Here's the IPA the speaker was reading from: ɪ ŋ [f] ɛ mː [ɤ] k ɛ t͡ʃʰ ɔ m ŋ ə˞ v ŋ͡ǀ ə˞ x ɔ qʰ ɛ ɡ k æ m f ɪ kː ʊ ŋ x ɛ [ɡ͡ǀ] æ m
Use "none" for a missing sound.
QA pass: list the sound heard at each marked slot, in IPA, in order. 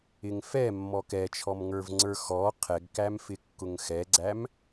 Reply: f, ɔ, ɡ͡ǀ

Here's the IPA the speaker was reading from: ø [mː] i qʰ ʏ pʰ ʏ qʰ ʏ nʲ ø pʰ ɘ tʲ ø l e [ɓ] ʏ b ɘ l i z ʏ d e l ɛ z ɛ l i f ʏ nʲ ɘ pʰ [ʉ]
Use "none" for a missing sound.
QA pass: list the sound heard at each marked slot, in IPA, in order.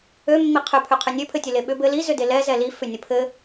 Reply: mː, ɓ, ɘ

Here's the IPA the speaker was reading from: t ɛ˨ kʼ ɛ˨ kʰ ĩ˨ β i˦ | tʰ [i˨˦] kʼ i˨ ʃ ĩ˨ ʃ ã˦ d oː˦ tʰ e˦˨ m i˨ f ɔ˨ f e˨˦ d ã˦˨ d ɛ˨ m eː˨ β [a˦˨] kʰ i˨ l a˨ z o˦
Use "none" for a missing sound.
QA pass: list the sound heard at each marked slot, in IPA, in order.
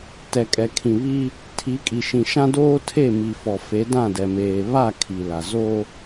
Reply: i˨˦, a˦˨

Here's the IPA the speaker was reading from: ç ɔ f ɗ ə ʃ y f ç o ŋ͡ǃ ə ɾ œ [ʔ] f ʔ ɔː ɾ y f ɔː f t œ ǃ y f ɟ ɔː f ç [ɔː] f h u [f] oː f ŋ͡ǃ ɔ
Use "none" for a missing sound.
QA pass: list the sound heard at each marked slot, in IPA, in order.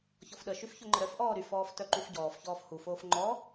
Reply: none, ɔː, f

